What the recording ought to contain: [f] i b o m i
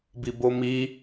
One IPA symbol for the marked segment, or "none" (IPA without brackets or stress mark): b